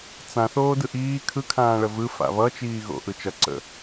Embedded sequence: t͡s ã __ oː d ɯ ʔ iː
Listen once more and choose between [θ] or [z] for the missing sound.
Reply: θ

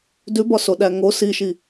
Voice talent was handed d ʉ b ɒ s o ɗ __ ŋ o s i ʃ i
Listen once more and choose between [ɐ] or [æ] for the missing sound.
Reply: æ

